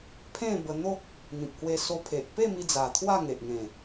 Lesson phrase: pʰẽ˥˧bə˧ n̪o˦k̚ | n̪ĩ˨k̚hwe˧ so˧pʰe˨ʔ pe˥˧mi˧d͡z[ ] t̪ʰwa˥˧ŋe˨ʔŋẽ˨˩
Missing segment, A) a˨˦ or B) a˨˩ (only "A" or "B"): B